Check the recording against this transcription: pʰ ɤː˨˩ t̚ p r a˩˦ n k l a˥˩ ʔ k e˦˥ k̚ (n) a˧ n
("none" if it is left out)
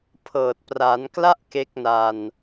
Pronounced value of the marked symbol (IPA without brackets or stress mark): n